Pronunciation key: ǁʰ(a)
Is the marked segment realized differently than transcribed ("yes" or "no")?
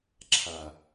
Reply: no